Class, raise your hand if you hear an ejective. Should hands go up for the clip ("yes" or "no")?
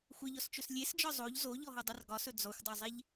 no